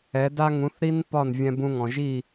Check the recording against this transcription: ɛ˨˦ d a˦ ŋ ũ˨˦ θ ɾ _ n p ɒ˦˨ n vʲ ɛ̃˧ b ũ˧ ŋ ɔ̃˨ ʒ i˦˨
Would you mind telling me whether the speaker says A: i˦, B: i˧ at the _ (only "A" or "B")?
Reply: A